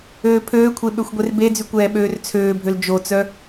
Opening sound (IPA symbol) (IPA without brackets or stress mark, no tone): øː